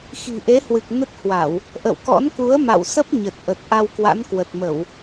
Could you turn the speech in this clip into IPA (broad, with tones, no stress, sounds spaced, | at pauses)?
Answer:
x i̤˨˩ ʔ e˨˦ h w ɨ˨˩ k̚ n ə˦˥ t̚ h w a˧˩˨ w | ʔ ə̰˧˨ w k ɔ̰˧˥ n k u˨˦ ə̯ m a̰˧˨ w s ə˦˥ p̚ ɲ ə˨˩ t̚ ʔ ə˨˩ t̚ ʔ a˧ w k w a̰˧˥ n k w ə˨˩ t̚ m ə˧˩˨ w